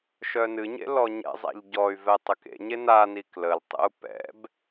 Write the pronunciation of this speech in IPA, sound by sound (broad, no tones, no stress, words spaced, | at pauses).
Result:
ʃœnɨɲḛ lɔɲɛ̰zˤæ̰ʎ ɟɔy̯vɛ tˤəkḛɲe nani kləltˤḛu̯ pɛ̰b